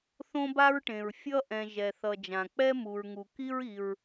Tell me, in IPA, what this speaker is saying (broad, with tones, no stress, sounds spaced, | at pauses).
θ õ˥ b a˥ ɹ ʈ ẽ˩ ɹ fʲ ʌ˥ ʔ ɛ̃˩ ʒ ɛ˩ θ ʌ˩ d͡ʒ ã˩ k͡p ɛ˥ m u˩ ɹ ŋ u˩ k i˥ ɹ i˩ ɹ